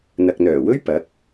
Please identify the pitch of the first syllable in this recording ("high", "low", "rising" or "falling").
low